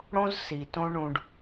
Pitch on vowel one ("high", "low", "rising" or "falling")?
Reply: high